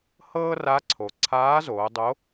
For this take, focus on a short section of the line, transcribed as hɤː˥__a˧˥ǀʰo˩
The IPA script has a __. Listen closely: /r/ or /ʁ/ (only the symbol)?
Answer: r